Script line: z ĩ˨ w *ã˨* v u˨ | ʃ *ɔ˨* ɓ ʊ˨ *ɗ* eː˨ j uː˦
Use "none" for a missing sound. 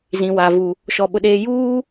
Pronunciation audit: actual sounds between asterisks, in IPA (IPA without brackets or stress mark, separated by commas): a˨, ɔ˨, ɗ